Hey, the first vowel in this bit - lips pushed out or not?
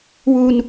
yes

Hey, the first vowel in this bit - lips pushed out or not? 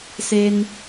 no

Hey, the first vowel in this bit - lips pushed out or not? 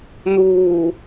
yes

